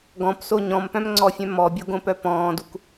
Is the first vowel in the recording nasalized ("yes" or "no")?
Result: yes